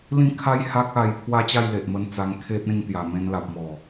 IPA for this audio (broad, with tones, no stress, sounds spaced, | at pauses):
l ĩ˥˧ kʰ a˦ j h a˦ k̚ a˧ j pʰ w a˥˧ t͡ɕ a˥˧ j l e˨ ʔ m ə˧ n t͡s a˧ ŋ kʰ e˦ t̚ ẽ˥˧ ŋ t̪ j a˨˩ m ẽ˧ n l a˨ p̚ m ɔ˨˩